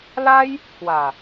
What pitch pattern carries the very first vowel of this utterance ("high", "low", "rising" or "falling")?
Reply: high